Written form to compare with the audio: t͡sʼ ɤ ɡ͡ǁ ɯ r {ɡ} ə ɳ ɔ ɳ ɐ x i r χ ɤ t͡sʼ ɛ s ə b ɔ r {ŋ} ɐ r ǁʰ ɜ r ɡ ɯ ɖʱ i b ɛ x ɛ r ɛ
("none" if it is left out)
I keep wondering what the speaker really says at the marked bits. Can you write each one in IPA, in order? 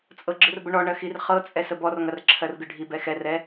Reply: b, ŋ

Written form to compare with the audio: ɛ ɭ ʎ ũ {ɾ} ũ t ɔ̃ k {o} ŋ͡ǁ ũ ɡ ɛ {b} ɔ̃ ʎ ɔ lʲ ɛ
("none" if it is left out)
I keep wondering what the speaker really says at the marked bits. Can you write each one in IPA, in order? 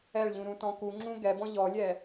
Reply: ɾ, u, b

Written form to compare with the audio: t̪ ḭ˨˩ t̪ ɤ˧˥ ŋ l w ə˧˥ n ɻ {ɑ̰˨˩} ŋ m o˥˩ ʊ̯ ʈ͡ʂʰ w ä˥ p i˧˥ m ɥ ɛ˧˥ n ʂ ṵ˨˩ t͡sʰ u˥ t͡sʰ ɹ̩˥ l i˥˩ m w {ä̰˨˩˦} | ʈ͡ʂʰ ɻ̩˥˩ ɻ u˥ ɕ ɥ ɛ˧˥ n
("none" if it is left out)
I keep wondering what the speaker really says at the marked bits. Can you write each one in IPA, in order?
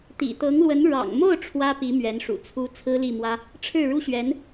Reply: ɑ̰˨˩, ä˥

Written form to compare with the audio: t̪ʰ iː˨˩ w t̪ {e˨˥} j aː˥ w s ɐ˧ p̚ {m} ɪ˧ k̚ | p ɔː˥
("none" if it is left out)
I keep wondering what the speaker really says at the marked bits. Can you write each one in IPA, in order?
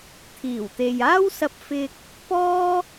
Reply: e˨, f

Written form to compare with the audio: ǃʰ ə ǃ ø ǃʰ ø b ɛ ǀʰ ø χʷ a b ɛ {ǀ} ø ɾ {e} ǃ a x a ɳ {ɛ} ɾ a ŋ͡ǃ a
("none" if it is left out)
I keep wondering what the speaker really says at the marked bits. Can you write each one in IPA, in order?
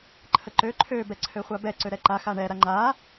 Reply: ǀ, ɛ, ɛ

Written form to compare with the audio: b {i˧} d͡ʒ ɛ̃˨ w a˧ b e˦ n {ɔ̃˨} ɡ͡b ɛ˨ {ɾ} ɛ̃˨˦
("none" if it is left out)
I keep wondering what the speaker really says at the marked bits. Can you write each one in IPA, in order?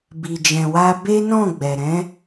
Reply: i˨, ɔ̃˦˨, ɾ

